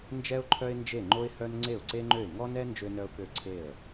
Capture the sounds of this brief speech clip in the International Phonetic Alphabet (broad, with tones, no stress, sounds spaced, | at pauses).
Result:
n d͡ʒ ɛ˥ ʊ̯ ǃʰ œ˥ ɪ̯ n d͡ʒ e˥˩ ŋ͡ǃ o˥ ɪ̯ h œ˥ n ŋ͡ǀ e˥˩ ʊ̯ ǀ e˥ ŋ͡ǃ ø˥˩ ɪ̯ ŋ ɔ˥ n ɛ˥ n d͡ʒ ø˥ n œ˥ ʊ̯ k ø˥˩ ǀʰ e˥˩ ə̯